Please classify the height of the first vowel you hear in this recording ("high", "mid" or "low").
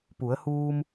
high